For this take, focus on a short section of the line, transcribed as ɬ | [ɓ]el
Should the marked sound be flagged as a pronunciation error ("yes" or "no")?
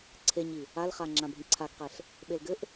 no